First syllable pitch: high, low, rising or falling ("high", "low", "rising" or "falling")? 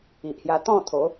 low